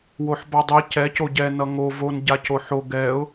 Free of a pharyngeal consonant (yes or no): no